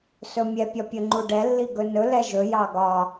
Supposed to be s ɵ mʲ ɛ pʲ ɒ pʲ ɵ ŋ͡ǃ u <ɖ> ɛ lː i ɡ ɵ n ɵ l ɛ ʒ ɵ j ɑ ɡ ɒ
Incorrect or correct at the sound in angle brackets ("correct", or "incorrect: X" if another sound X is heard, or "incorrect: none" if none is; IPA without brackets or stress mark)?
correct